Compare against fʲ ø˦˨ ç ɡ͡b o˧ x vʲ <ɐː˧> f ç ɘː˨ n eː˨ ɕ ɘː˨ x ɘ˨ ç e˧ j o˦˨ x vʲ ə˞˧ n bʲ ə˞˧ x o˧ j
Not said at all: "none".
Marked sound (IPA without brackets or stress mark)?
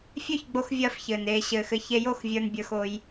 ɐː˧